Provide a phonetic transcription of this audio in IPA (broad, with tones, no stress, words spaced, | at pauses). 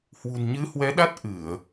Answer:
hwṳ˨˩nɲɨ˨˦hwɛ˨˦ ɗa˦˥t̚ ʔɨ˧˩˨ə̯